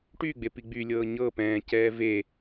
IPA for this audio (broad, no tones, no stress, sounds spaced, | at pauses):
ʈ y ɡ͡b e p i ɡ͡b y lʲ ɤː ɲ ɤ p ɛ̃ː c ɛː v e